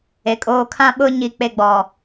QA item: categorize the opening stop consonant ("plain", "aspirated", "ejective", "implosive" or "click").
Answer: ejective